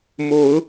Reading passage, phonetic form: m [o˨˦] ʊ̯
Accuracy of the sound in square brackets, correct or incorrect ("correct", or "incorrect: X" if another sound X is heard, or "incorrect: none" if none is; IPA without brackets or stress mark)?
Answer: correct